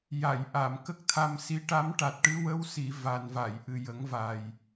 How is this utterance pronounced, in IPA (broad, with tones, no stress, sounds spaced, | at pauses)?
j a˨˩˨ j ʔ a˨˩˨ m k ə˦˥ k̚ t̪ʰ a˧ m s i˧˥ ʈ a˧˥ m ʈ a˨˩ t̚ ʈ ɨ˧˥ w ə˧˥ w s i˨˩˨ v a˨˩ n v a˨˩˨ j ʔ ɨ˨˩ j ə˨˩˦ ŋ v a˨˩ j